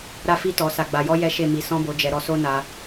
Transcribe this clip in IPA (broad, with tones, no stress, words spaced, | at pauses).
ɾa˧fi˧tɔ˨ sa˨ɡ͡ba˨jɔ˧ jɛ˦ʃe˦˨ mi˨sɔ̃˧bo˨d͡ʒɛ˨ ɾɔ˨˦so˦na˧